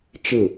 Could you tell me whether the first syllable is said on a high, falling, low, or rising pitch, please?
falling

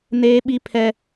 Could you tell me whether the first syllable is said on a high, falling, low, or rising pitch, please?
high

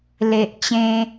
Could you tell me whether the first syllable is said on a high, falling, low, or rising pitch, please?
low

